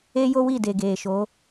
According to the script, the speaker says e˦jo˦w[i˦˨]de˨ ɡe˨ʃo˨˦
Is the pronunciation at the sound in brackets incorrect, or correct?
correct